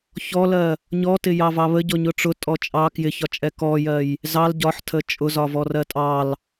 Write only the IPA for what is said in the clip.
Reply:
çɔlɜ | ɲɔtɪ jɑvɑβə ɟɔɲʊʈ͡ʂʊ tʼɔt͡ʃʼɑ kjɪçɒt͡ʃʼɛ kɔjɜj | zɑl ɟɒħtʰə t͡ʃʼʊzɒvɔ rɜtʼɑl

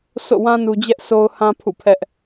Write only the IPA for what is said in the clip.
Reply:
so̰˦˨wã˦ nu˦ d͡ʑɛ˦ʔso˦ʊ̯hã˦pʰṵ˦˨ pʰɛ˦ʔ

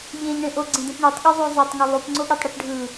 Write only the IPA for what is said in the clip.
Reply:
ʎẽʎɳẽ ʔoɡ͡ǀẽdẽp ɳutˤɠʉzˤu zˤetˤŋu lˠupŋ͡ǀoɠetˤɽɯp ɖʱɯ

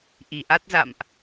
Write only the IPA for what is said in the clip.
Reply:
ʔi˨˩ʔa˦˥t̚za̰˧˨mʔ

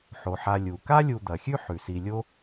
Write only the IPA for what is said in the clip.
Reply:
ħo˩ħa˨ lʲu˩ ka˥lʲu˨ d̪ɐ˩xʲʉ˦ ħʉ˩si˨lʲo˥

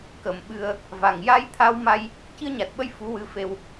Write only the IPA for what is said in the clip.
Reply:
kə˨˩˦mɓɨ˧ə̯ | va˨˩ŋja˧jt̪ʰa˧wma˧j | ci˧ə̯ɲa˨˩t̚ɓə˧j fu˧˥wɨ˧˥fe˧w

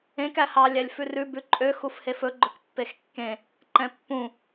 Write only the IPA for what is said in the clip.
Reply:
ẽk æhɑ lʲælʲfʉrʉ bʉǃʼø xufhefɵ ɡ͡ǃɵkpːexkːẽ | ǃɛ̃pːũ

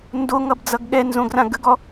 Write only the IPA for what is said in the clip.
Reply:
ndoŋʌbd͡zʌɡ ɠɛnzõɡrã ɡəɡɔ

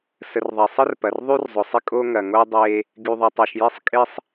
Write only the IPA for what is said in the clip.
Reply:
sə˨rðˤɐ˨sˤə˦r pɐ˨rðˤy˦rzˤʊ˨sˤɪ˦ kʼo˦ŋɐ˨ŋo˦ dˤe˦ | ɡy˨ðˤɪ˨tˤɐ˨ʃje˦sˤ kʼɪ˦sˤ

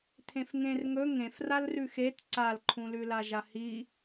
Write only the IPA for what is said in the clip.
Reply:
t̪ʰẽfŋẽr ŋɵ ŋẽfral rʉxet ǀalǃʰũlʉla ʒahi

